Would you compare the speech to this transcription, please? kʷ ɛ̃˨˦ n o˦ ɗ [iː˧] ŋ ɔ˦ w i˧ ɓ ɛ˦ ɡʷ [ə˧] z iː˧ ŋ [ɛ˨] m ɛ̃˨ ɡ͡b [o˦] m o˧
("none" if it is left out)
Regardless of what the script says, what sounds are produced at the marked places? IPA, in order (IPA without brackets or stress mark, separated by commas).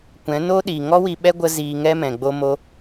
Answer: iː˨, ə˧, ɛ˦, o˧